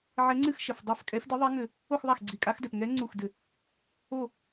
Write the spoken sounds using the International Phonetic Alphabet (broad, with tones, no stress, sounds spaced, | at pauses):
ʕ ɛ˧˥ ŋ͡ǀ ɨ˥˧ x ʃ ɘ˩ f dˤ a˥˩ f kʼ ɛ˧˥ f d ɨ˧˥ ðˤ ɛ˧˥ ŋ ɘ˧˩ | o˥˧ x ðˤ a˥˩ x ɡ͡ǀ i˧˩˧ kʼ a˧˥ x d ɛ˩ p ŋ ɛ˧˥ ŋ͡ǀ u˧˩ x d ɘ˧˩˧ | o˥˩